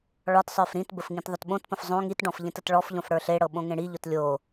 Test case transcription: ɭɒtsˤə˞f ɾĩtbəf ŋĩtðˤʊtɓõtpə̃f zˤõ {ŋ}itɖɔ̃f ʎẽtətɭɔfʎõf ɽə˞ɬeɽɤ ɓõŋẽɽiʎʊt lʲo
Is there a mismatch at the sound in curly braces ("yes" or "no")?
no